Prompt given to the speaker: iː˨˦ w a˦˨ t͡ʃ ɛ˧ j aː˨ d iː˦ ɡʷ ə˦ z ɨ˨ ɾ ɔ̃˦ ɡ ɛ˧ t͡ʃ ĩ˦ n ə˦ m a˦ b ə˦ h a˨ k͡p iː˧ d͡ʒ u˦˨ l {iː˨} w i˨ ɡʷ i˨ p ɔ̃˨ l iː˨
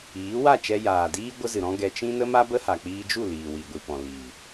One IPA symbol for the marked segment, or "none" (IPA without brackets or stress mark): iː˨